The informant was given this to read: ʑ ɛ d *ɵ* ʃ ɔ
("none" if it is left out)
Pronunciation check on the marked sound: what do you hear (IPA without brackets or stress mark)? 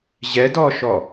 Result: ɔ